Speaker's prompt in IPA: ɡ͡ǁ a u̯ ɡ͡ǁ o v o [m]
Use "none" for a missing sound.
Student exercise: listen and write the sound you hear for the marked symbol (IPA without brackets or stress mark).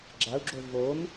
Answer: m